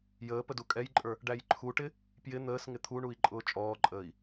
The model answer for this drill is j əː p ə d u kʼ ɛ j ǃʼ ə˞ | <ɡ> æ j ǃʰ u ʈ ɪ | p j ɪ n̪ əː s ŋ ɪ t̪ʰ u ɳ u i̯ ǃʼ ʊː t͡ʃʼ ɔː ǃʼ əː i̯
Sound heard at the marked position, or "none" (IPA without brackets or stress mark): ɖ